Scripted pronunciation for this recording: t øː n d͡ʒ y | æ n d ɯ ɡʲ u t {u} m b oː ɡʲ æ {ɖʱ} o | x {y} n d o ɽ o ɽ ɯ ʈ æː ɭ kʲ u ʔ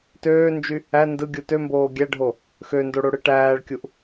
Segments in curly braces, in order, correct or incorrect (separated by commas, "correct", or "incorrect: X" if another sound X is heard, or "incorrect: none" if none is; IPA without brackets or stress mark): incorrect: ø, correct, incorrect: ø